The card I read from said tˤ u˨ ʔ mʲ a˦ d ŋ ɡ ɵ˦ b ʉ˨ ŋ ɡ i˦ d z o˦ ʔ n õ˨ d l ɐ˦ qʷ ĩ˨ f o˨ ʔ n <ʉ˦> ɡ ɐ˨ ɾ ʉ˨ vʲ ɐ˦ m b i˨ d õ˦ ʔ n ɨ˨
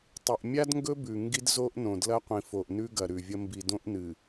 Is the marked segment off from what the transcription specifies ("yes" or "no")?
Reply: no